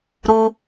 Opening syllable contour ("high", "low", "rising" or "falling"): high